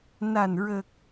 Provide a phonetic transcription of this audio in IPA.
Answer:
na˨˩nɹə˨˩k̚

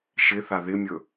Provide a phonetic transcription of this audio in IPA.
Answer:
ʃɪθa ðɪmʲɵ

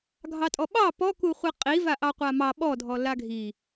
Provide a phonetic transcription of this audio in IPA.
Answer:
ɡʱɑtʼɔɓɑ pɔku χʷiqʼiva ʔɑqʷamɑ ɓɔdʱɔ laɡʱi

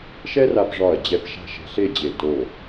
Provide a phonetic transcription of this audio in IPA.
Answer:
ʃɛ˥ra˧p ʐɒ˧˩ɐ̯d͡ʑɛ˧˩p ʃa̤˥˧ʃɛ̤˧ ɬe˥˧d͡ʑe˧˩ to˧˩

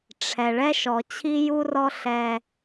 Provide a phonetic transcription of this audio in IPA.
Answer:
ʈ͡ʂʰɛ˨ ɭɛ˦ ʃɔ˨t͡ɕʰi˦ju˦rɔ˦ ɬɛ˦

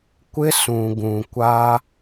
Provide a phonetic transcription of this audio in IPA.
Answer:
kʷɪ˦sũ˨ɡũ˨ kʷa˦

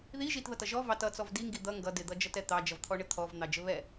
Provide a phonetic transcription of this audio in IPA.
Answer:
ði ʒitðʌtʌ ʒɔ vɑt ʌt͡sɔv diŋɡi d̪ʌ ŋɡʌ dɪd̪ʌd͡ʒʌtɛ t̪ɑd͡ʒʌvt̪ʰɔɳɪ t̪ʰɔvn̪ɑd͡ʒɘ βɛ

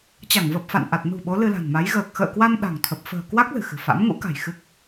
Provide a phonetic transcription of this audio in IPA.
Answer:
t͡ɕa˧˩ŋvə˨˩p̚fa̰˧˨nʔa˨˩t̚ nṳ˨˩ ɓo˨˦lɨ˧la̤˨˩nma˨˦j ɣəː˨˩k̚ xə̰ː˧˨kwa˧n ɗa̤˨˩ŋ t̪ʰə˨˩p̚ fə̤ː˨˩kwa˦˥k̚ lɨ̤˨˩xɨ̤˨˩fa̰˧˥m ŋṵ˧˥ka̤˨˩j xɨ˦˥k̚

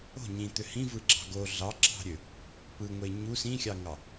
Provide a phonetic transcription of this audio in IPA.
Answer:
o̤ ɲĩt̪ø hĩvɯɡ͡ǁɑ̤ ɡo ɮɑǁɑ̤ɾʲø | pɯŋʷe ɲu sĩxʲɑŋɑ

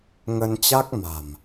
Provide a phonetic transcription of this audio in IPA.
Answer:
ŋə˧nt͡ɕa˦˥k̚ma̤˨˩m

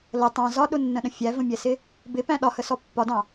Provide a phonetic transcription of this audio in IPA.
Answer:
lə tˤɑ̃ zɒɗʊnːə̃ɗə̃ fʲævə̃mʲɛsɪ | bɪpæ̃ ɗɒhəsɔ pːɒdɑ̃

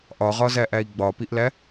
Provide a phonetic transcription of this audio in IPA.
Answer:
ʔɒʁɒzæʔæi̯ ɡ͡bɒpiʔlæ

